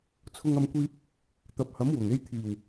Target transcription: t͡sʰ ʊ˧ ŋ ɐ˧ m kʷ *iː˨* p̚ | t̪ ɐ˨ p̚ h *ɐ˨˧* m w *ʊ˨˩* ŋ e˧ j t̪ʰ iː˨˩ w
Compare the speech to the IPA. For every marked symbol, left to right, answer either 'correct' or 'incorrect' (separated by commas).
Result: incorrect, incorrect, correct